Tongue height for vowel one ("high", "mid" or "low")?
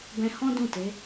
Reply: mid